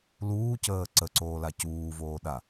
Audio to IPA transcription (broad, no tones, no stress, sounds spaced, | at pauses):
l uː c əː ǀ ə ǀ oː l a c uː v oː ɗ a